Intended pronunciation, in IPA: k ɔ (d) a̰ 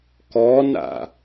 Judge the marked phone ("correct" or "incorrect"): incorrect